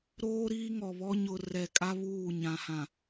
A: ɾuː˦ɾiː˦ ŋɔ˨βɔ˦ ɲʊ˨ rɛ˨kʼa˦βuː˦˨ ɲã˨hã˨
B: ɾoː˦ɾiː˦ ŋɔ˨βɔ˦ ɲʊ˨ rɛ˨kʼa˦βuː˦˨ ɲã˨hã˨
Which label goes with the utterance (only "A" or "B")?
B